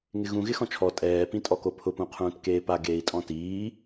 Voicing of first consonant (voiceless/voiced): voiced